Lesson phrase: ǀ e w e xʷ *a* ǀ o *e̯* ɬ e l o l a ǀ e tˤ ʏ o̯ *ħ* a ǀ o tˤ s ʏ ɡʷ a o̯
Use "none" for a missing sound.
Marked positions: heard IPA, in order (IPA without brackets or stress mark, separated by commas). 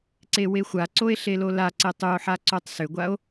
a, e̯, ħ